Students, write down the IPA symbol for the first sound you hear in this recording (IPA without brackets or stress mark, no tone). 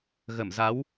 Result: ɣ